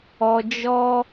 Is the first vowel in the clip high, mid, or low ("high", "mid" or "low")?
mid